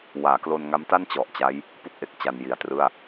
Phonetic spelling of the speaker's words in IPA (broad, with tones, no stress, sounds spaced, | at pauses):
w aː˩˦ k l o˧ n ŋ a˦˥ m t a˥˩ n t͡ɕ ɔ˨˩ ʔ t͡ɕ a˦˥ j | p u˥˩ k̚ ʔ e˨˩ k̚ t͡ɕ a˧ n j i˨˩ a̯ t r ɯ˥˩ a̯